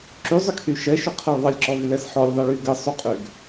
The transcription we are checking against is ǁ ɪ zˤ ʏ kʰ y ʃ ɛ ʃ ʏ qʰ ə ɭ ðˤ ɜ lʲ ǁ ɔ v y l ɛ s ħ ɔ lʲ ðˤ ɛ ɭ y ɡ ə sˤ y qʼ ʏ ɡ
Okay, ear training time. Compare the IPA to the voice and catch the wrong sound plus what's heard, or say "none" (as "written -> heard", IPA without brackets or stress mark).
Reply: ɪ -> y